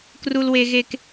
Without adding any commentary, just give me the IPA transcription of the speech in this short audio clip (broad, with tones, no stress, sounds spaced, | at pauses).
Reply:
k r u˥ l w e˥ ɣ e˥ k